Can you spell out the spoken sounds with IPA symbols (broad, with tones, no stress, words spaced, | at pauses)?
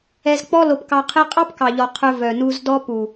ɛ˧zk͡pɔ˦lo˧pkɑ˧ qʰe˧qʼɑ˦pkɑ˨ʎɔ˨ qʰɵ˧ vœ˨nu˧zdɔ˦ pu˨